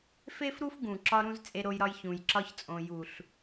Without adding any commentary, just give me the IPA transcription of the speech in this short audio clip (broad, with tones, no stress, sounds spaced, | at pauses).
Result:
f e˦ f ɾ u˦ f ɡ ũ˨ ǁ ɒ˧ ɾ ũ˧ z t͡sʼ e˧ ɾ o˧ j ɾ ɒ˧ j ç ũ˨ j ǁ ɒ˧ ç t͡sʼ õ˨ j u˨ ɬ